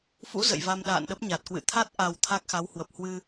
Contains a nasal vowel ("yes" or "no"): no